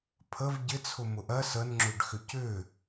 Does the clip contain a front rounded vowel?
yes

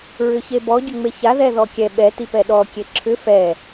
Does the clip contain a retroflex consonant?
no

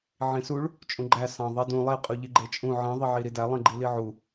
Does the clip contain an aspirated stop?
no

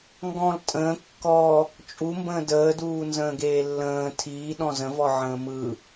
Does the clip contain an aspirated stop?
yes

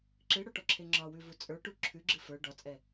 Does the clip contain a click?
yes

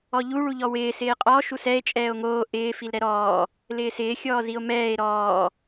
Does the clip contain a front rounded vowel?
no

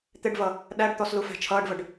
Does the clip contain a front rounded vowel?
no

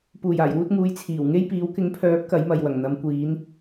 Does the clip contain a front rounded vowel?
yes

